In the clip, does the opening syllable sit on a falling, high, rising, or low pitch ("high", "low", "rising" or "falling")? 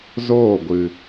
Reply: falling